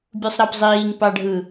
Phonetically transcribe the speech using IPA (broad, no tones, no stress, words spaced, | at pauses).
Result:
bʲusˤɾɑpzˤiːŋ pɑɖʱɯ